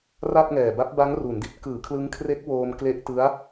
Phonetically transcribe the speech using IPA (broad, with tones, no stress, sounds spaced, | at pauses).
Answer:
r a˥˩ t̚ ŋ ɛː˨˩ b a˦˥ p̚ b a˦˥ ŋ r u˩˦ n d i˦˥ t̚ k ɯː˩˦ kʰ l ɯ˦˥ ŋ kʰ r e˦˥ k̚ w oː˧ m k l e˦˥ ʔ t ɯ˦˥ a̯